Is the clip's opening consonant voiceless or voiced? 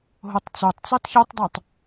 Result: voiced